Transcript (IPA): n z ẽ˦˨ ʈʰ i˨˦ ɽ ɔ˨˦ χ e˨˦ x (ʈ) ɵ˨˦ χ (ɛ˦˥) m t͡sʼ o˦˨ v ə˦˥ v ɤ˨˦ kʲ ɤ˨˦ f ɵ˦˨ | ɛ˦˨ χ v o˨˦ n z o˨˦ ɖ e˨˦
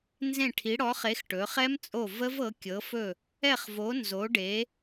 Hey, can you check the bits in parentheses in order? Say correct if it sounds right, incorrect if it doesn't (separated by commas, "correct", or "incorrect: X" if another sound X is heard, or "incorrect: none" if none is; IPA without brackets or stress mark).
correct, correct